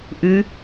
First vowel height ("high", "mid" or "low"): high